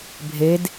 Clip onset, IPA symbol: bʱ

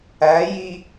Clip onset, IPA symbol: æ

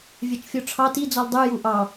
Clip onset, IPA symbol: vʲ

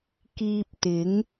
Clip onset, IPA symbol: k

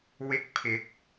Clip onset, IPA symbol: w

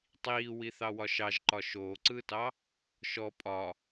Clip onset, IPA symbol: tˤ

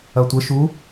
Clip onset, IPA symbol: ɐ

